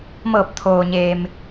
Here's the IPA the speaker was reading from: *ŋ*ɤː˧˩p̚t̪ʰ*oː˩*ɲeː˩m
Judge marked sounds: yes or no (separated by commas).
no, yes